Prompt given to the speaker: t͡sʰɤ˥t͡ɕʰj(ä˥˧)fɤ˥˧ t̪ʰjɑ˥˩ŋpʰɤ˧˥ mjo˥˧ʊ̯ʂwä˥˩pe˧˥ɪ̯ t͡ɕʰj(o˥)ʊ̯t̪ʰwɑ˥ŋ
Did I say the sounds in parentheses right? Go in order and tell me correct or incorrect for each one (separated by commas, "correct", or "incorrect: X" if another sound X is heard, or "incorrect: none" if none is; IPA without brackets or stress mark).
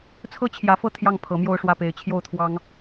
incorrect: ä˧˥, incorrect: o˥˩